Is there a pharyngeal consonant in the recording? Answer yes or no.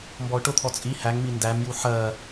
yes